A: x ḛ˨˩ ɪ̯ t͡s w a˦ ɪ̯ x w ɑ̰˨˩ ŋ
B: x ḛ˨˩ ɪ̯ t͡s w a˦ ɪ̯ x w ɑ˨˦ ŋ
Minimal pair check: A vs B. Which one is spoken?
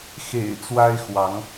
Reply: B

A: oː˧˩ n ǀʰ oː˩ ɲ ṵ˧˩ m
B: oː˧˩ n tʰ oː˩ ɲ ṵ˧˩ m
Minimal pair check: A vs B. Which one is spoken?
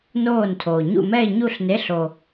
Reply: B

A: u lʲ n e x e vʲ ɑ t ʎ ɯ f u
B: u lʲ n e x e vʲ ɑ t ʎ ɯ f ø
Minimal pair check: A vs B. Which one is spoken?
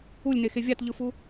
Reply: A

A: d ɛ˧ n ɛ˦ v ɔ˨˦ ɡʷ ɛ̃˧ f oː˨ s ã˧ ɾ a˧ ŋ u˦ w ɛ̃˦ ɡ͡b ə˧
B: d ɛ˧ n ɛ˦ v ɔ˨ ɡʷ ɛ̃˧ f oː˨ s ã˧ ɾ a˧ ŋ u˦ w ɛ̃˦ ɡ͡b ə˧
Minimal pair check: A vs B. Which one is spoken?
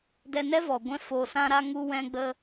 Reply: B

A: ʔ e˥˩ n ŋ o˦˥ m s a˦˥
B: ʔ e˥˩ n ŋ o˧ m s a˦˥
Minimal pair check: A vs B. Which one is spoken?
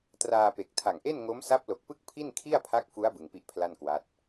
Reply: A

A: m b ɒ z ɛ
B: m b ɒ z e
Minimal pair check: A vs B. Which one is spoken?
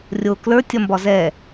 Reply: A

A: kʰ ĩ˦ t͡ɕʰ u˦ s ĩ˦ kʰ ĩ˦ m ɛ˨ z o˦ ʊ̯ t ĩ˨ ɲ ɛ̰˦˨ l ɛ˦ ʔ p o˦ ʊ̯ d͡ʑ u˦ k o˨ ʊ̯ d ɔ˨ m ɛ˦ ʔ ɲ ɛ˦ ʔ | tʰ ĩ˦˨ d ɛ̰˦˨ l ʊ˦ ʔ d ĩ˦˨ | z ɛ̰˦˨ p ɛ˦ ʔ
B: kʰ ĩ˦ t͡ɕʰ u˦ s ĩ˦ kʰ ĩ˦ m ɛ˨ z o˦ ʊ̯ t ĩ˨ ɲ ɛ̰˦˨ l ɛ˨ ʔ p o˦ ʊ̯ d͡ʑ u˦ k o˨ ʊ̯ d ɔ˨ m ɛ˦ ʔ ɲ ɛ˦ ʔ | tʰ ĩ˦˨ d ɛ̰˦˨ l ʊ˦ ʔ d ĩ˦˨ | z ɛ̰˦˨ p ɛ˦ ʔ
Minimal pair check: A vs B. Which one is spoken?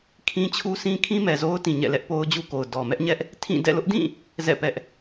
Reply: A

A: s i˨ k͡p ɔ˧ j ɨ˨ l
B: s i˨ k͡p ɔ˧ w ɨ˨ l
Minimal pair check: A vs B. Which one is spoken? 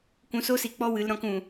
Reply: B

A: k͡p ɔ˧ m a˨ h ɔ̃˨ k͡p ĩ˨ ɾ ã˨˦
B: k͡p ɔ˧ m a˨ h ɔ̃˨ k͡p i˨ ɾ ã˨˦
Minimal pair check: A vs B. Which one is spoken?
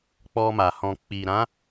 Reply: B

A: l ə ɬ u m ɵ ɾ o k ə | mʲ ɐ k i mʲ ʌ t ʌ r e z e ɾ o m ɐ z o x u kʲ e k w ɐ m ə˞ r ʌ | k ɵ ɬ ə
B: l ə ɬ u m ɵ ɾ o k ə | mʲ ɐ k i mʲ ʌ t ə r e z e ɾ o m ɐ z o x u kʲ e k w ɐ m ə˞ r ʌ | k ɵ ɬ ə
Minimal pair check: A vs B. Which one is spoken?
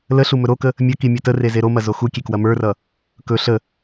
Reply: B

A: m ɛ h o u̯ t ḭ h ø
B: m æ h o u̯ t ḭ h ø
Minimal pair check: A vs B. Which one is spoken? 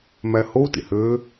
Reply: B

